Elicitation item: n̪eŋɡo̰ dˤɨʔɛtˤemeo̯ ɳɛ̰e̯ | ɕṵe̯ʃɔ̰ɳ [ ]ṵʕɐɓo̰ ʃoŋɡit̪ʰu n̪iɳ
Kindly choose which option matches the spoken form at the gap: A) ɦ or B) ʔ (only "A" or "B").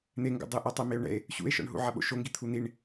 A